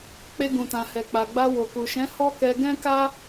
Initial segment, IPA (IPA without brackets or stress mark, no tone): k͡p